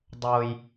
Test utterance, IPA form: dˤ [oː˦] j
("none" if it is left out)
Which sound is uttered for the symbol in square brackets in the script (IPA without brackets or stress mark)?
oː˦